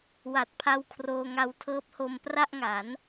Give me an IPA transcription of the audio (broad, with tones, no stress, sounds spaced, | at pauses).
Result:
w a˨˩ t̚ pʰ a˧ w kʰ r oː˧ ŋ a˧ w tʰ ɤː˦˥ p̚ h o˧ m p r a˥˩ ʔ ŋ a˩˦ n